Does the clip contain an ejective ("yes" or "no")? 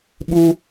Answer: no